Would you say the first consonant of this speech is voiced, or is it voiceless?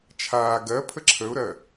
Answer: voiceless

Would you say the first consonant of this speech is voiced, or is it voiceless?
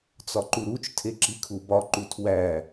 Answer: voiceless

